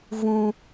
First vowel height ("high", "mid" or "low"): high